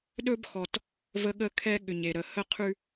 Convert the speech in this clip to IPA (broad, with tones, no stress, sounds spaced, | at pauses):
ɗ ɵ˦ b x ɔ˨ t | v ə˦ ɠ ə˦ kʰ ɛ˦ ɠ ʏ˨ ɲ e˨ ɾ ə˨ h ə˦˨ qʰ ʉ˦